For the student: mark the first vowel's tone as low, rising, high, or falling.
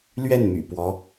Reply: falling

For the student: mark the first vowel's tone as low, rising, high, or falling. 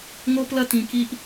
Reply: high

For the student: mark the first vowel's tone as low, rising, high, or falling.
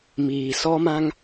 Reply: low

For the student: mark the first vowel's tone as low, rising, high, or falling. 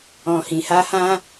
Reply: low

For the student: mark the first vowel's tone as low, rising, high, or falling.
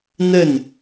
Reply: falling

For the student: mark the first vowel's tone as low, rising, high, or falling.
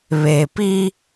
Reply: low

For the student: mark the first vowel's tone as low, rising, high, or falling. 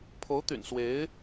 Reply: rising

